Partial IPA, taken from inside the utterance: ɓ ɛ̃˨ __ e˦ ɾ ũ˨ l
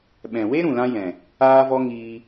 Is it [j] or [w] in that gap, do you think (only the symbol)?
w